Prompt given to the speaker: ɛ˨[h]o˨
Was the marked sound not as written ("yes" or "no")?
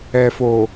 yes